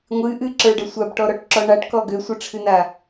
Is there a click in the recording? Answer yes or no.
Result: yes